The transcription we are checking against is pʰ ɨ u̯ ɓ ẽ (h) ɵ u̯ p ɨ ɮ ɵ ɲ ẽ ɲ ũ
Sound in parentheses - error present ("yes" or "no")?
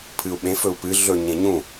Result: yes